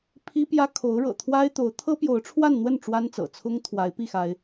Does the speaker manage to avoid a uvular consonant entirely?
yes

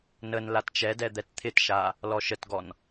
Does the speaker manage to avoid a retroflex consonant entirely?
yes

